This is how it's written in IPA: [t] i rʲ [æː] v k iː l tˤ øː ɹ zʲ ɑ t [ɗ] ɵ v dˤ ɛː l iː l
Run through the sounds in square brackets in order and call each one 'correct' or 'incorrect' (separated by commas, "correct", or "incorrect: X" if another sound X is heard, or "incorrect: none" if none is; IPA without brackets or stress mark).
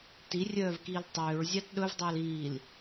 correct, incorrect: œː, correct